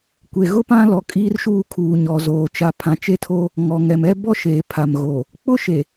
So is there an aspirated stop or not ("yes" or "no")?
yes